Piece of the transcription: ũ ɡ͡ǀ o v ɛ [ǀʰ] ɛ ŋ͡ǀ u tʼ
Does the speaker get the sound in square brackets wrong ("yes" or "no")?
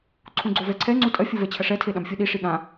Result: no